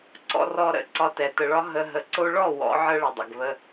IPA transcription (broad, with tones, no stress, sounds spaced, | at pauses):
ǀ ɔ̰˧ r ɔ˧ ɾ ə̰˨˦ ǀ ɒ˧ t ɛ˨ t ə˨ ɭ ɒ˧ ɦ ə˧ ɦ ə˨ ǀ o˧ ɭ ɔ˦˨ w ɔ̰˨˦ ʕ ə˦ ɭ ə˨ dˤ ə̰˨ ɡ β ə˧